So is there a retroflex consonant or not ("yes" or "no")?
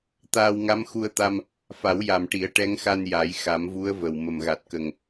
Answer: yes